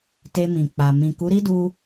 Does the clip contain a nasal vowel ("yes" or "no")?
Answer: yes